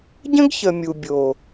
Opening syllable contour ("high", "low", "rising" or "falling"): high